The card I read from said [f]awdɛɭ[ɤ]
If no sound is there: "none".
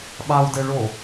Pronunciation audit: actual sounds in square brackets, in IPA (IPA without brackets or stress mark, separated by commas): ɓ, o